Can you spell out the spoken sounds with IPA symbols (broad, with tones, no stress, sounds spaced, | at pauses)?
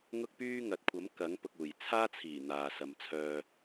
ŋ ʊ˧ k̚ p yː˧ ŋ ɐ˨ t̚ kʷʰ ɐ˨˥ m k ɐ˨˥ ŋ p ʊ˨ k̚ uː˨˩ j t͡sʰ aː˥ t͡sʰ iː˨˩ n̪ aː˨ s ɐ˨ m t͡sʰ œː˨